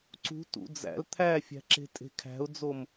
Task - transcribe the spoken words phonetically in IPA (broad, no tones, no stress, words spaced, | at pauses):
ǀṳ tṵd͡zæ̰l t̪ʰæfʲæ̤ǁe̤ tʼe̤kʰæ̤ʊ̯d͡zom